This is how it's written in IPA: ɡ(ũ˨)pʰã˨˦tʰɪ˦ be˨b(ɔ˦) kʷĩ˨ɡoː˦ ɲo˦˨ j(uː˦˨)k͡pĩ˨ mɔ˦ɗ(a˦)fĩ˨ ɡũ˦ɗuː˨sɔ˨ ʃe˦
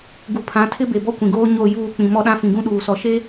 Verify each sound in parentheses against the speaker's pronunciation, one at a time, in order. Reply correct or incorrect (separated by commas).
incorrect, correct, correct, incorrect